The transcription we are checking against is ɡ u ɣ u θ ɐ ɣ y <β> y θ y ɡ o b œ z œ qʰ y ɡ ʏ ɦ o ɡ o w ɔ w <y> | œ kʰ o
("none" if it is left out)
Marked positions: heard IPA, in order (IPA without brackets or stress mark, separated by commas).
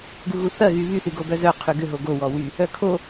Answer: β, y